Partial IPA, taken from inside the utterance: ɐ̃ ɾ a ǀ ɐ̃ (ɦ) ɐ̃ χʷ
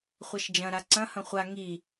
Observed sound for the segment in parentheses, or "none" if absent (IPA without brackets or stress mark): h